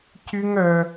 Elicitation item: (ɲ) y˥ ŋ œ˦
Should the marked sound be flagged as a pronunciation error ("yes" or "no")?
yes